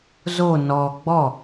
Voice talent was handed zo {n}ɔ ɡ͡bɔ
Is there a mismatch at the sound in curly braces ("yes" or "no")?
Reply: no